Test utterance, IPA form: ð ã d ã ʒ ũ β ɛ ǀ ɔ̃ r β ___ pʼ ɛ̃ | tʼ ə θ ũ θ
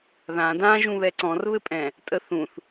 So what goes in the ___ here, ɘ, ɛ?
ɘ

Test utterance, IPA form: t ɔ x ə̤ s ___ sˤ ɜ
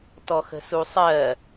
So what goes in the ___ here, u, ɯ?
u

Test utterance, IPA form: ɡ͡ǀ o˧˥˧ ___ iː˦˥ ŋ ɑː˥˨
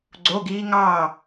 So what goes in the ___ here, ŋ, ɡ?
ɡ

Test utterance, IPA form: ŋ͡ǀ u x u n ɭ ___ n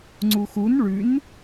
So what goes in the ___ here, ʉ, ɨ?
ʉ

